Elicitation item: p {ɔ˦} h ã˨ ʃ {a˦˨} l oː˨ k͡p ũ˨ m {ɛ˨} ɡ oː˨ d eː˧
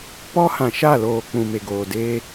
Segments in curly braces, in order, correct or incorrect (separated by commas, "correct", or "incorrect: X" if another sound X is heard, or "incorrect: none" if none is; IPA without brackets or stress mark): correct, correct, incorrect: e˨